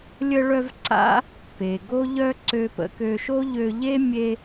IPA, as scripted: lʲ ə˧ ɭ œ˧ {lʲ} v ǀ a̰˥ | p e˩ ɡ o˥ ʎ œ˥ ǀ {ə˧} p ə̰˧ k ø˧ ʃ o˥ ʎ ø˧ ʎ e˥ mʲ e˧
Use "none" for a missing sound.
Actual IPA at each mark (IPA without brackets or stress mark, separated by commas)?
none, ø˧